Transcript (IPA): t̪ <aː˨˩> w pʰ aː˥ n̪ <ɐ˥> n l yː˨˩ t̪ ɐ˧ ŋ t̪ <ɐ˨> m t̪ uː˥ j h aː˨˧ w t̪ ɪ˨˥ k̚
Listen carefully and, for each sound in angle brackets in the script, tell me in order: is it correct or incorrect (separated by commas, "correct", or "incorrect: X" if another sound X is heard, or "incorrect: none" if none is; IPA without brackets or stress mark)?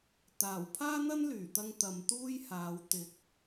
correct, correct, correct